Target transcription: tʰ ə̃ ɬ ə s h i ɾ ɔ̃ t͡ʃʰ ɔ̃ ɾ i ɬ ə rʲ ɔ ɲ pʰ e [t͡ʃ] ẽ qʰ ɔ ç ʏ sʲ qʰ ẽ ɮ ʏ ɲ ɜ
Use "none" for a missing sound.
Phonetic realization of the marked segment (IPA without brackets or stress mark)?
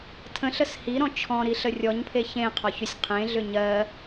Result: ç